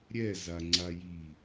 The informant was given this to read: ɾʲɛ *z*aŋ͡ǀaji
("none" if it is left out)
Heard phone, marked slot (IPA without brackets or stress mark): z